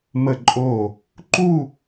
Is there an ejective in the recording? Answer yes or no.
yes